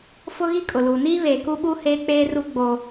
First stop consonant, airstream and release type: ejective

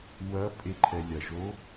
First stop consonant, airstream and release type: ejective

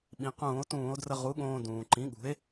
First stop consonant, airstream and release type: implosive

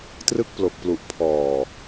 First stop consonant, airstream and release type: plain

